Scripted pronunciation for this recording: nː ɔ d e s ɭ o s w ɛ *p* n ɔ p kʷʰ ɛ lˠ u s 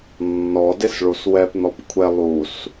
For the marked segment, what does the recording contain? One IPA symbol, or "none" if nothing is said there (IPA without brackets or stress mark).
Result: p